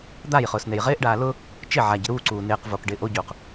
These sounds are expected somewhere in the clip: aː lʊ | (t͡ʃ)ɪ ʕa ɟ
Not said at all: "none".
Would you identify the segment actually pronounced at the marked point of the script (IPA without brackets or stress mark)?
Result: t͡ʃ